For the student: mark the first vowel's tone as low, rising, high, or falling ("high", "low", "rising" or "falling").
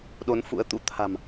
rising